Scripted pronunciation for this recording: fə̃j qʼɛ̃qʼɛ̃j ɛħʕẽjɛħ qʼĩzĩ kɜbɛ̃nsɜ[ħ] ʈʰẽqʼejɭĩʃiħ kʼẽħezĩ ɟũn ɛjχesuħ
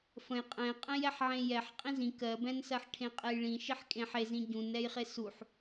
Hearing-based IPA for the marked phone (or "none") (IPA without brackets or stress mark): ħ